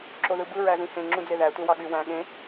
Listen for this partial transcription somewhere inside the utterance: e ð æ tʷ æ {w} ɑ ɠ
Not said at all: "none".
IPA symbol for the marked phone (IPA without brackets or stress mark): w